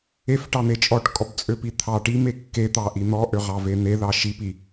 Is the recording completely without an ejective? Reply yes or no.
no